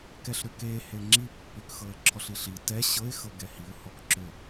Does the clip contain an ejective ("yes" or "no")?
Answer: no